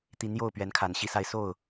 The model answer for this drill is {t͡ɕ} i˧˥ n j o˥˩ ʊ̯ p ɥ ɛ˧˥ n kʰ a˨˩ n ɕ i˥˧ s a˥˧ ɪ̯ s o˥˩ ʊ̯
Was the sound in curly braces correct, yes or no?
no